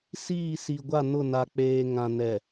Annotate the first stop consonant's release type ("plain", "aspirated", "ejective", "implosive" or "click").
plain